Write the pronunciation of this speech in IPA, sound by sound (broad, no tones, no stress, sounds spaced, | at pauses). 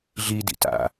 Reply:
ɮ i d ḭ t a̰